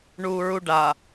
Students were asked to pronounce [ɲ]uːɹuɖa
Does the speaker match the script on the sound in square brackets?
no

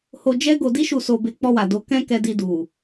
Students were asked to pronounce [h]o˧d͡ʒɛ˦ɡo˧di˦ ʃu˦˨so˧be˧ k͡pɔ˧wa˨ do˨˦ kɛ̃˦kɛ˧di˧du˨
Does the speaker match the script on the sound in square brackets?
yes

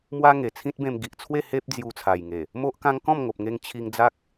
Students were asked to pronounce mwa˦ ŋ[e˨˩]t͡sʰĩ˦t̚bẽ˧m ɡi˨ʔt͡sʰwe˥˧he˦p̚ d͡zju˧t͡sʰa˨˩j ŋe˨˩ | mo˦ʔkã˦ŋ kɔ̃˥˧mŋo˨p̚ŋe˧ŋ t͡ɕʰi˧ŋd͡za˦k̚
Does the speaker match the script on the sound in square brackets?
yes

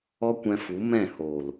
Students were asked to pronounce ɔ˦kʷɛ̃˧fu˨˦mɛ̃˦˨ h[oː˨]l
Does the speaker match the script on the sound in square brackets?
yes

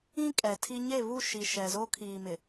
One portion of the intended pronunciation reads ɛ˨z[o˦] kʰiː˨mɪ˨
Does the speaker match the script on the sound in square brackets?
yes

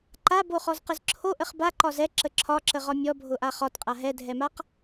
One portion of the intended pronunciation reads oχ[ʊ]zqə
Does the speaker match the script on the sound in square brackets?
no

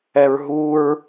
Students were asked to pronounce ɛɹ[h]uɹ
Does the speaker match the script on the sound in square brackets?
no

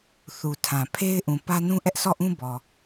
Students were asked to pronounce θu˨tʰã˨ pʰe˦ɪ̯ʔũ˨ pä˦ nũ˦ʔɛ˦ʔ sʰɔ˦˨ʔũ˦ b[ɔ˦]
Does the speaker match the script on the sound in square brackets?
no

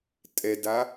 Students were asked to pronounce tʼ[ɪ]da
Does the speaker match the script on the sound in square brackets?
no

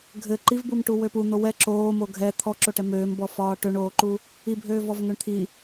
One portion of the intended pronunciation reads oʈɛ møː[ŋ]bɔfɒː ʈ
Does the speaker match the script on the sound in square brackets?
no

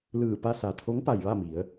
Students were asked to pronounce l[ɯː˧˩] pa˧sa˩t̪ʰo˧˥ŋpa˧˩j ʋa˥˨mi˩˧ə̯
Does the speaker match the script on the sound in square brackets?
yes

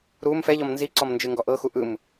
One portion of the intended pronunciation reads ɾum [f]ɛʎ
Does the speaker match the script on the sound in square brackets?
yes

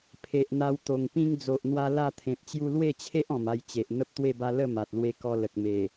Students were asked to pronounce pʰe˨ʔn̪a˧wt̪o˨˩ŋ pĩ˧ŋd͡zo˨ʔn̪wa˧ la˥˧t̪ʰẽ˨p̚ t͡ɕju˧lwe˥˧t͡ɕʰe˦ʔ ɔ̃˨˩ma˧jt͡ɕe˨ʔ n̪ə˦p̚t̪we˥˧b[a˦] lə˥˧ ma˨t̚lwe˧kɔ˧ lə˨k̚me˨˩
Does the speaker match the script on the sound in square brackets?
yes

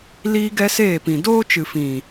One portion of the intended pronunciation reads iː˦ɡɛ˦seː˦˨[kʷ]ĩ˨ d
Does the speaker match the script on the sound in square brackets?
no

